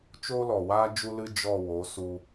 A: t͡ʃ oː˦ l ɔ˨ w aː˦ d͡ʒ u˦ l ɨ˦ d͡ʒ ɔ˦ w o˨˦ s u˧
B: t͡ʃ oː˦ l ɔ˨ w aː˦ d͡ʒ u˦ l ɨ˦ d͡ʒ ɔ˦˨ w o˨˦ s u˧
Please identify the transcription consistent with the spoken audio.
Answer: B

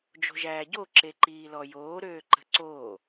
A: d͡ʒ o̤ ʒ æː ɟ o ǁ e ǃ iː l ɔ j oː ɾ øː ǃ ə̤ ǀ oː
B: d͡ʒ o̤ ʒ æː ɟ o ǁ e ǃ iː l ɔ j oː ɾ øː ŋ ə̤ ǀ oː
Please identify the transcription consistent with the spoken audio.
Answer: A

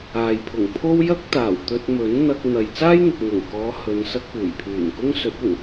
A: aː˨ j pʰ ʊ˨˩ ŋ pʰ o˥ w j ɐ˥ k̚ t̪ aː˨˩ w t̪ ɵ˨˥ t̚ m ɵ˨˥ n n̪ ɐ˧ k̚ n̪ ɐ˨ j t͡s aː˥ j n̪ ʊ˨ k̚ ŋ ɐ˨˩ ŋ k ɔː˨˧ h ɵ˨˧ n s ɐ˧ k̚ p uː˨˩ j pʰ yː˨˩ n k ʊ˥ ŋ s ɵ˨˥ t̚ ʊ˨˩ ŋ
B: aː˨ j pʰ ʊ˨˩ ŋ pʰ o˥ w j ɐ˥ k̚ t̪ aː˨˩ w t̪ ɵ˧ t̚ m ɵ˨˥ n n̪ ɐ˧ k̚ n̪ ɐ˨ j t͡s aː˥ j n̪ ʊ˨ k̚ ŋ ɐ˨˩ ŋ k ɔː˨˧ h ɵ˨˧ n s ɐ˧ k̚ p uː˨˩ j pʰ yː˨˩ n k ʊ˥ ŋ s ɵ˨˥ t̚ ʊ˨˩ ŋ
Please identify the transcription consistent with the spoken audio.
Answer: B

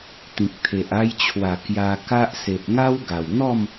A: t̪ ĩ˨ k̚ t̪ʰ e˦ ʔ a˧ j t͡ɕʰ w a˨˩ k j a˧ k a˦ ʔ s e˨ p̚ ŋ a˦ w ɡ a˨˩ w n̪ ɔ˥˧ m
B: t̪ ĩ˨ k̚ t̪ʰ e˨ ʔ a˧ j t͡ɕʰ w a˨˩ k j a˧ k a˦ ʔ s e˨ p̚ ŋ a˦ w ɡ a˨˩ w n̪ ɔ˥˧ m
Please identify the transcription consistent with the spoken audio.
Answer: B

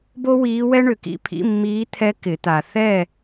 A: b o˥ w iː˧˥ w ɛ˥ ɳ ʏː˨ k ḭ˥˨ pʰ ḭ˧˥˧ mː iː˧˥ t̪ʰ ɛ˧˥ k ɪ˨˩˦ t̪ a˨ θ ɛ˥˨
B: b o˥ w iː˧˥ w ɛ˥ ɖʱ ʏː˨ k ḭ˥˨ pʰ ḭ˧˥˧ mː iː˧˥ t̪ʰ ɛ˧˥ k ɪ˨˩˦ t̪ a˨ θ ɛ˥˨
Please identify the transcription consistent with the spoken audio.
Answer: A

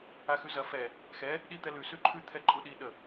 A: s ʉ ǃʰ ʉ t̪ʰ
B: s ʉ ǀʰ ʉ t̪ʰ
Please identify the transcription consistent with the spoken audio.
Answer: A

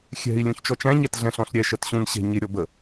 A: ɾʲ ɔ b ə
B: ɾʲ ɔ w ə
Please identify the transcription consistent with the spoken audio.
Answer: A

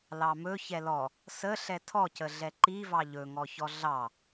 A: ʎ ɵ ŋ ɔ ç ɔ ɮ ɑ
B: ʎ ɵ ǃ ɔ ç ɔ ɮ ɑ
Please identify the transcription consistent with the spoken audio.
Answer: A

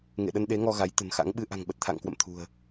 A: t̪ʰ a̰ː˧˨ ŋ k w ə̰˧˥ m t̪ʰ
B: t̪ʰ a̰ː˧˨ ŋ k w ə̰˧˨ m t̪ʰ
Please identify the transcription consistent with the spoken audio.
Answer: B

